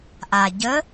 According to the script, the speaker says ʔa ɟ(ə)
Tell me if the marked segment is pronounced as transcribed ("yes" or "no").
yes